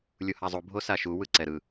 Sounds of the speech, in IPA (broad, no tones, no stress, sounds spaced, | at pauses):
lʲ u h a zˤ u bʱ o s a ʃ u w ɯ ǀ ɛ ɾ ɯ